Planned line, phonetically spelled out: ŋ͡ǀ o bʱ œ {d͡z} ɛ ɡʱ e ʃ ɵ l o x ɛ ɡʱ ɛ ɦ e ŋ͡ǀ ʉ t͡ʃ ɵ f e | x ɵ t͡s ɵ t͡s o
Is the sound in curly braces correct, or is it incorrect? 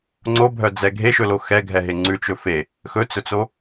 correct